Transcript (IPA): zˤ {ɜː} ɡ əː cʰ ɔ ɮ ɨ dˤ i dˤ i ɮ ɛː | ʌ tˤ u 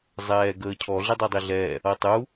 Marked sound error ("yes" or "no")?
yes